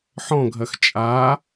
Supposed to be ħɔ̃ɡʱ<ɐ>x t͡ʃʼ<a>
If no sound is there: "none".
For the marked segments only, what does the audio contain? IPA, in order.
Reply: ɐ, a

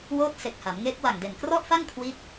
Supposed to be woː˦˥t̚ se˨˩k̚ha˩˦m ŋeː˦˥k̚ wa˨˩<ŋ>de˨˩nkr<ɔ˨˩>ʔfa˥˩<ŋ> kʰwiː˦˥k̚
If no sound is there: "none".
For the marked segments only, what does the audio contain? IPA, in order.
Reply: ŋ, ɔ˥˩, ŋ

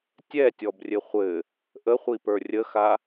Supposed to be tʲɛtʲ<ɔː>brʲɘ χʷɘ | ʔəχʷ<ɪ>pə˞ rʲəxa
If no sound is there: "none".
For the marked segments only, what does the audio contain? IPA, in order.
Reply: ɔ, i

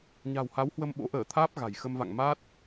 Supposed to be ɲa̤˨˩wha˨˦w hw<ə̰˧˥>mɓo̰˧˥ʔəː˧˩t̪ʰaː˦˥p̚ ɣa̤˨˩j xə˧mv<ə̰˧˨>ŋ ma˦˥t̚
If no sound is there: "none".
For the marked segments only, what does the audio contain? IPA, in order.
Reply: ə˧, a̰˧˨

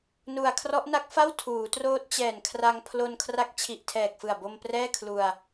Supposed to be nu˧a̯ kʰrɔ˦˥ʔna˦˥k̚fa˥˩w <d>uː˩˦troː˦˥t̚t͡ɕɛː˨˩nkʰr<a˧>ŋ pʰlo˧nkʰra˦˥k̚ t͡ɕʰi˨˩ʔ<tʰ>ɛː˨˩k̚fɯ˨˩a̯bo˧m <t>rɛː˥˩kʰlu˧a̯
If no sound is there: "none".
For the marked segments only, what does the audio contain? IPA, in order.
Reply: tʰ, a˧, tʰ, p

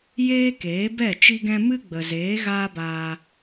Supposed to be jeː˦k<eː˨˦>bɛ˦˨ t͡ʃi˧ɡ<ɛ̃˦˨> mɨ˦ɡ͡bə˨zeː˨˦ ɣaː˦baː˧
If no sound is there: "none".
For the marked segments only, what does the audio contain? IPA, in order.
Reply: eː˨˦, ɛ̃˧

